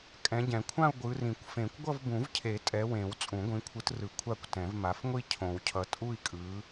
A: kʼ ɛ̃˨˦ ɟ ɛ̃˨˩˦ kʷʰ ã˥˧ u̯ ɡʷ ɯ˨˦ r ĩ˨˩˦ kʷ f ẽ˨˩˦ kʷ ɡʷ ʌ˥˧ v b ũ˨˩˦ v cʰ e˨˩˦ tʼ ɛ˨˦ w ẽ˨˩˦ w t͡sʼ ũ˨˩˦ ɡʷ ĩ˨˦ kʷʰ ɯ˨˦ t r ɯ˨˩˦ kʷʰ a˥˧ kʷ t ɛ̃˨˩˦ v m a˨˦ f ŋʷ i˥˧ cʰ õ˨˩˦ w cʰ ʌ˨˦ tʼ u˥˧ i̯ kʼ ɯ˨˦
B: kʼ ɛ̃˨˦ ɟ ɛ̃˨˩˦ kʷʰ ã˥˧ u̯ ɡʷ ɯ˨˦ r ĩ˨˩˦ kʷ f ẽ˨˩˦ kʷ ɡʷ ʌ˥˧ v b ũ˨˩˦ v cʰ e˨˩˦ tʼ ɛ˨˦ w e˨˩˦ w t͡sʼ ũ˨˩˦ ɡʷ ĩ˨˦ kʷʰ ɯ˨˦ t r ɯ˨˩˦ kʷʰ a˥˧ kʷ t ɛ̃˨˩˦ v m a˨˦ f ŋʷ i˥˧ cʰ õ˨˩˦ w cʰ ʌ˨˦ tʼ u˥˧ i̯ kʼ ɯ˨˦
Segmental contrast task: A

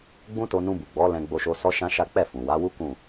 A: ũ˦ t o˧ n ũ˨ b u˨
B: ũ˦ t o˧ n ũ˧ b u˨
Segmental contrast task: B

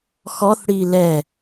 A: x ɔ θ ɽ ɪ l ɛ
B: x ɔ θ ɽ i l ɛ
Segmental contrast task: B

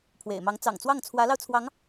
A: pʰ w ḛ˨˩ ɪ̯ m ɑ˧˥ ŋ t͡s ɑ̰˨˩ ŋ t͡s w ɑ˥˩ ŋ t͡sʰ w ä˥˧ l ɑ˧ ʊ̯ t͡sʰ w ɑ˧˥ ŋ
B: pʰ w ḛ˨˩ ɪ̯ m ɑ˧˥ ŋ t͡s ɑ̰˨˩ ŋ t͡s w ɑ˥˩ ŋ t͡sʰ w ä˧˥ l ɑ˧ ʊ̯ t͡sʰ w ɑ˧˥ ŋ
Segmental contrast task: B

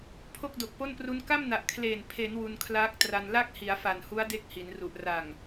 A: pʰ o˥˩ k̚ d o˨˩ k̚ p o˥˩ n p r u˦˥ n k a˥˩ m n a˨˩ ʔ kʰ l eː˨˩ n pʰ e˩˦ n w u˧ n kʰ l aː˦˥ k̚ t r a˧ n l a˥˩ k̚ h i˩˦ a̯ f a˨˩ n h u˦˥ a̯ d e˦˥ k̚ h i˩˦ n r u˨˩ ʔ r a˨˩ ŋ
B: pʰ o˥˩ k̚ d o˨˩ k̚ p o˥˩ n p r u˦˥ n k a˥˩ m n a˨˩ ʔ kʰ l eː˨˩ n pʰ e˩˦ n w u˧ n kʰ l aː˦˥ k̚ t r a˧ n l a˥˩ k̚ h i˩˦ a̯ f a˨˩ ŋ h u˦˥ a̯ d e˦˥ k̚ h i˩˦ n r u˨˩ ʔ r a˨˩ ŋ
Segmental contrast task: A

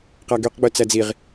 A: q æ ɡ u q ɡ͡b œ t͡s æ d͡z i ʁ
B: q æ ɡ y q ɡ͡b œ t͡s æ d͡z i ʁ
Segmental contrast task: B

